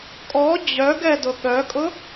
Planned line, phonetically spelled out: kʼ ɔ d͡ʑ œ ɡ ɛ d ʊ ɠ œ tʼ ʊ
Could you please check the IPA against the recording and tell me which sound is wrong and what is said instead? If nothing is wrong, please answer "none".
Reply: tʼ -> kʼ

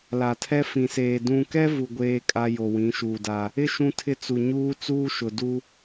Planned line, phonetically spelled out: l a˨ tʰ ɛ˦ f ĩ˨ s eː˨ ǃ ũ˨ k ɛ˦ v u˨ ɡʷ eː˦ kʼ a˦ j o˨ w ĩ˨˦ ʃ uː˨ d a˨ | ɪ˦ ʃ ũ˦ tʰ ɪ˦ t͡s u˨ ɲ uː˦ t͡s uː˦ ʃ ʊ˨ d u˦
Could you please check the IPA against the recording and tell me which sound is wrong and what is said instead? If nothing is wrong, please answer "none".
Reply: ǃ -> d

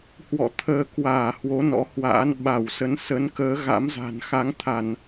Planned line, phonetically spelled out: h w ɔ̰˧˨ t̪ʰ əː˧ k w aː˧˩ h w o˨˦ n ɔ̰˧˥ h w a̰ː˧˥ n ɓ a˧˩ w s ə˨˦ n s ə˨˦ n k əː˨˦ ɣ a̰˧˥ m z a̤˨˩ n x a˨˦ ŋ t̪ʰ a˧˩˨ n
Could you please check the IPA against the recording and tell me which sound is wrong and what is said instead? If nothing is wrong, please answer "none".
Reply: none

